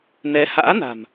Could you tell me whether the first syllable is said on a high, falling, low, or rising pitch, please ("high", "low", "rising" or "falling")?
rising